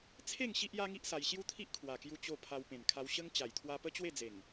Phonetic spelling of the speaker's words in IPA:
t͡sʰe˥˧ŋ ɕi˦ʔja˦ŋi˦ʔsa˧j ɕju˦t̪ʰi˦ʔkʰwa˨˩kju˧ t͡ɕo˧pʰa˧w pẽ˨˩nkʰa˧w ɕə˦ŋ t͡ɕa˨˩jt̪ʰwa˧ pə˦t͡ɕwe˥˧d͡ze˨˩ŋ

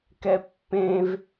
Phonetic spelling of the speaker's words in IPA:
kɛpːẽv

